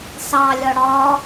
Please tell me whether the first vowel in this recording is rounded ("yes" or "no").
no